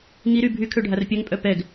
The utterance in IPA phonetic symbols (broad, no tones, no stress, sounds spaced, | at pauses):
ŋ i ɾ y bʱ y kʰ ø ɖʱ a r pʲ œ ŋ pʼ œ p ɛ ɡ